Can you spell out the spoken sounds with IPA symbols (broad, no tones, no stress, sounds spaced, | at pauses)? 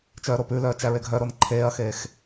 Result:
t͡ʃ œː ɾ o p ʉ l œː t͡ʃ æ ɹ e ɡʱ œ ɾ o n ǃʰ eː ɐ̯ x eː x